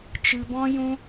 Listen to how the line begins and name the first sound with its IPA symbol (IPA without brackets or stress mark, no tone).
t͡ʃ